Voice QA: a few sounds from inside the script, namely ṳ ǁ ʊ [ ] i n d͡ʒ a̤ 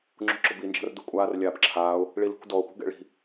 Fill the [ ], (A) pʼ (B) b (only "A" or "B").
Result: B